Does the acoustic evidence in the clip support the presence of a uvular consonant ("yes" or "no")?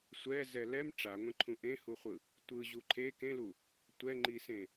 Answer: yes